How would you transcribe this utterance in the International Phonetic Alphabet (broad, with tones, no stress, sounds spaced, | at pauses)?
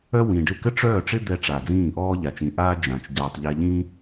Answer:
œ˥ w ĩ˨˩ ɖ ɪ˥˩ k ə˥ ʈ͡ʂ œː˥˩ ʈ͡ʂ ɪ˥ d̪ ɛ˧ ʈ͡ʂ a˨˩ d͡z ĩː˥˩ ʔ ɔː˥ ʎ a˨˩ t͡ʃ ĩ˨˩ ʔ aː˥ d͡ʒ ã˨˩ t͡ʃ ɟ aː˧ tˤ ʎ ɛ˧ ʎ ĩ˥